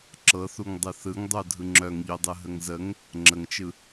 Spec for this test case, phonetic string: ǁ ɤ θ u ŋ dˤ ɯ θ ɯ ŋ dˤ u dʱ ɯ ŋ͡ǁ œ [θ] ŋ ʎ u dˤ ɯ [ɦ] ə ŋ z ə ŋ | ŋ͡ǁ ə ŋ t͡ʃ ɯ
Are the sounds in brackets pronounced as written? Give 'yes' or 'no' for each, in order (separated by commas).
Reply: no, yes